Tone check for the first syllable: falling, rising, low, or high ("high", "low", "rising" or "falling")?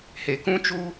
low